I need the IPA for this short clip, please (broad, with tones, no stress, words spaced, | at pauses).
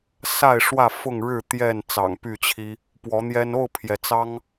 sa˥˨ɪ̯ʂwä˥˨ fʊ˥˨ŋ ɻɻ̩˥˨t̪jɛ˥˨n t͡sɑ̰˨˩ŋpy˥˨t͡ɕʰi˦ | pwɔ˨˦n̪jɛ˦n o˥˨ʊ̯pʰjɛ˩ t͡sɑ˦ŋ